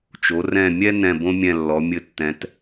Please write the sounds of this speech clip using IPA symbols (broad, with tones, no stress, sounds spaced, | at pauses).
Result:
t͡ʃ o˨˦ r ɛ̃˦˨ mʲ ɛ˥ n ɛ̃˦˨ b õ˥ mʲ ɛ̃˦˨ lː ɔ˨˦ mʲ ɘ˦˨ tː ɛ̃˨˦ t